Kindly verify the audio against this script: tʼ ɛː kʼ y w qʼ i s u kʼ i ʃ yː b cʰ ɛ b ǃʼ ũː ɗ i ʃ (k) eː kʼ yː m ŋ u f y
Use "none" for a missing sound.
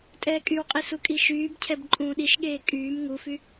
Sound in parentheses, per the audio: ɠ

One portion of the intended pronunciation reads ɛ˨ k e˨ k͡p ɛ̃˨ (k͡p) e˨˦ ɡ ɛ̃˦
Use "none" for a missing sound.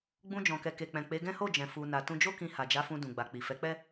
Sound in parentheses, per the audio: k͡p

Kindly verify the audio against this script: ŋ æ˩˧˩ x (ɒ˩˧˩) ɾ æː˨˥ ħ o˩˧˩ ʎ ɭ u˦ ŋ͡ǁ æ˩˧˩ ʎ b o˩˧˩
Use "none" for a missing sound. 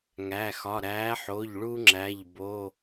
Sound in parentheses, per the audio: ɒ˩˧˩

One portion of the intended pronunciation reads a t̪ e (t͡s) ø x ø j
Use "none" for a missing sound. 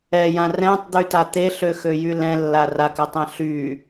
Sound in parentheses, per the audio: ɬ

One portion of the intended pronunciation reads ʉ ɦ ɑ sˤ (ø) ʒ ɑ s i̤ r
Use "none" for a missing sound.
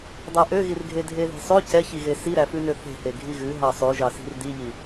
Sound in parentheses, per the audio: ʉ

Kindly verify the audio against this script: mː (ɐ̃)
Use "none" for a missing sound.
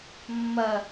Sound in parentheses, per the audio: ɐ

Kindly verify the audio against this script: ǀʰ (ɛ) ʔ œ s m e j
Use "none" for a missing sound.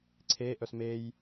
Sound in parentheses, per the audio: e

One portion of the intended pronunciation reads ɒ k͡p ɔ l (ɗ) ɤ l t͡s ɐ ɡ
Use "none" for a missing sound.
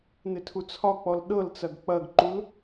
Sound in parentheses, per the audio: ɗ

